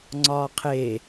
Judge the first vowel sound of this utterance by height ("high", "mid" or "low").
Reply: low